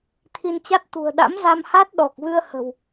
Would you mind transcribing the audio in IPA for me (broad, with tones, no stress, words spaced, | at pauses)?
t̪ʰi˧nt͡ɕa˦˥t̚ t̪ṳ˨˩ə̯ ɗa̰˧˥mza˧mha˦˥t̚ ɗɔ˨˩k̚vɨ˧ə̯ hə̤˨˩w